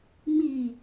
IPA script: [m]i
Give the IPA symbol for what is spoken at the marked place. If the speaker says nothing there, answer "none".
m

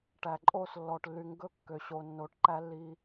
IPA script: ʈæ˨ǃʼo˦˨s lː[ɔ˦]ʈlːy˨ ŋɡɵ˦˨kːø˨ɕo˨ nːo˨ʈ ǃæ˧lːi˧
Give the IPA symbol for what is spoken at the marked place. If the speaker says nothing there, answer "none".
ɔ˨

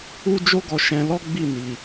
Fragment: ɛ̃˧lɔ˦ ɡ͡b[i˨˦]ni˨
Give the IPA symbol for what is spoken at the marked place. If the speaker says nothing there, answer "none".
i˦˨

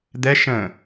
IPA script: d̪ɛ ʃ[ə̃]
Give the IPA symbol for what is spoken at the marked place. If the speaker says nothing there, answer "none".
ə̃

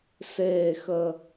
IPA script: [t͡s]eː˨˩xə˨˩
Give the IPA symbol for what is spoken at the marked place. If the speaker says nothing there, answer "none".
s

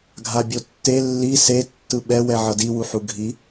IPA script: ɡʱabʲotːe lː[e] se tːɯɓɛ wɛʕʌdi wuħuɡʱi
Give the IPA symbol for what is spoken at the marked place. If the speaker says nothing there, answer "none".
i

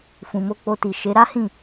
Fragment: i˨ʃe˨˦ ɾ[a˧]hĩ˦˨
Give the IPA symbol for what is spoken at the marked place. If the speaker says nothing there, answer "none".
a˦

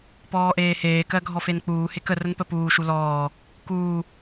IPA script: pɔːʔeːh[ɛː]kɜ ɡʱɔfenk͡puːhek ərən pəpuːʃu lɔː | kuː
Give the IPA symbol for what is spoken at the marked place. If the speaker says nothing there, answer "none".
eː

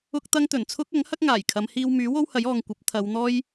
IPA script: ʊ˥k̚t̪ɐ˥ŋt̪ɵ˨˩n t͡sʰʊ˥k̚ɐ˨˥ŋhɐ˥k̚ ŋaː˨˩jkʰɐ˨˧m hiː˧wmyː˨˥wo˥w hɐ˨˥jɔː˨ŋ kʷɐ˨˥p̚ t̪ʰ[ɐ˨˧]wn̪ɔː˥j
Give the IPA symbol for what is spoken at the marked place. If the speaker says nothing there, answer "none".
ɐ˨˧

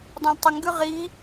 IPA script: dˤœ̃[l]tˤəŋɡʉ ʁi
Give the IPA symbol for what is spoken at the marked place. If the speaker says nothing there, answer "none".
l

